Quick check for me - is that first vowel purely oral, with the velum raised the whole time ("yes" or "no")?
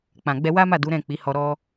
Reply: no